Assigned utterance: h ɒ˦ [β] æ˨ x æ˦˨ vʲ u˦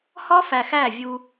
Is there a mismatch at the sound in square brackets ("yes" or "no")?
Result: yes